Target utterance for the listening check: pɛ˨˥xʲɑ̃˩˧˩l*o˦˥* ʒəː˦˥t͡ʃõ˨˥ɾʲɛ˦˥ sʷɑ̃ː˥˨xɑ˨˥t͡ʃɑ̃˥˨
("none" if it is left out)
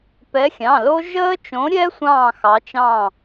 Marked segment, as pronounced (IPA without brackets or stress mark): o˦˥